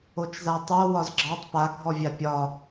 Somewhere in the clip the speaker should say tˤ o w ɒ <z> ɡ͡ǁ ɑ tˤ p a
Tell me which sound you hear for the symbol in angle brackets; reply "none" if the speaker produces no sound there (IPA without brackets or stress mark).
z